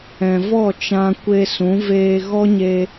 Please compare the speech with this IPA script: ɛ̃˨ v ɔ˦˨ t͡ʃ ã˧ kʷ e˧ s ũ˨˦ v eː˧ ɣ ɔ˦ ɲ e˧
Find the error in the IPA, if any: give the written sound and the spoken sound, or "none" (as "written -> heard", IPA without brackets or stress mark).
none